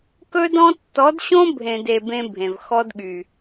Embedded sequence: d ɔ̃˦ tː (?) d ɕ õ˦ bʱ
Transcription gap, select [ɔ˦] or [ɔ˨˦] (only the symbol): ɔ˨˦